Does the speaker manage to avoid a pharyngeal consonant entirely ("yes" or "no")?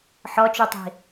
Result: no